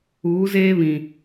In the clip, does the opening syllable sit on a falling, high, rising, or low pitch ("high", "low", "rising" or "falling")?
rising